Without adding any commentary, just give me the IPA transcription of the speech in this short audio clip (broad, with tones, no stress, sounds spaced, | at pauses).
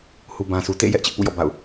h u˨ b ã˨ sʰ u˨ t ḛ˦˨ j ɛ˦ ʔ t͡ɕ ɪ˦ ʔ p ṵ˦˨ j ɔ̰˦˨ b a̰˦˨ ʊ̯